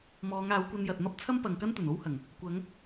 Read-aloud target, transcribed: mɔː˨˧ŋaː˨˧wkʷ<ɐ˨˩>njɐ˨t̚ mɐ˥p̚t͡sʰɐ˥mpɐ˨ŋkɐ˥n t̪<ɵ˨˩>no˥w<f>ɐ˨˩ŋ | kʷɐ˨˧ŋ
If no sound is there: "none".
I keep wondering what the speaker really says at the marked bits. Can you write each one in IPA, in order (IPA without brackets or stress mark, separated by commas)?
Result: ɐ˧, ɵ˨˩, h